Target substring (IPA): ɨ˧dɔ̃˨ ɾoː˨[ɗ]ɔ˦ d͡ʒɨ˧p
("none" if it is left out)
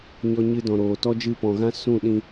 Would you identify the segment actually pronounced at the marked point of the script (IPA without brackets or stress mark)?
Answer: t